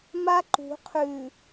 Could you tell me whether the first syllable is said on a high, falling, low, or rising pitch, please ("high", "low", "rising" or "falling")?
high